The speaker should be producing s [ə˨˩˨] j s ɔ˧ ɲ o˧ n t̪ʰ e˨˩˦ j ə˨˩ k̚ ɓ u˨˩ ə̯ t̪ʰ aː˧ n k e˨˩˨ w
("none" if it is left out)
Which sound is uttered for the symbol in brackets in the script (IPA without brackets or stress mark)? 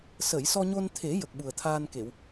ə˨˩˨